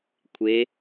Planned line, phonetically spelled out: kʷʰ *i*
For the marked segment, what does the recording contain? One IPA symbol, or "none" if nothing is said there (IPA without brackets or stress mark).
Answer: e